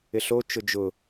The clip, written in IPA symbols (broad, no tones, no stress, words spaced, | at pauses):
ɪɬo t͡ʃʊd͡ʒʊ